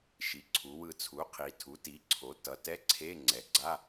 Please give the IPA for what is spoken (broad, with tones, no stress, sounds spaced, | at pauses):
ʃ i˩˧ ǀʰ u˩˧ w ɯ˧˩ t͡sʰ u˩˥ qʰ i˩˧ tʰ u˩˥ t i˩˥ ǀʰ o˩˥ t ʌ˩˥ t ɛ˧˥˧ ǀʰ e˧˥˧ ŋ͡ǀ ɛ˩˥ ɡ͡ǀ a˧˥˧